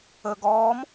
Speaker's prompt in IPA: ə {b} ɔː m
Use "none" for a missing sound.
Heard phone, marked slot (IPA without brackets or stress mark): ɡ